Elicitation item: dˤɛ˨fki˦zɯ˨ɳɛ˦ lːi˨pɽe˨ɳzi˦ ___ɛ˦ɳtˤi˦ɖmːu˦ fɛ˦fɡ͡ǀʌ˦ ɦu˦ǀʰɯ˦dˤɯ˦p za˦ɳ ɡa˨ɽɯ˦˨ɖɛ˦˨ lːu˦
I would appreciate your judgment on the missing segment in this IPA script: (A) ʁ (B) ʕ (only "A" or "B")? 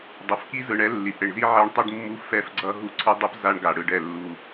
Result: B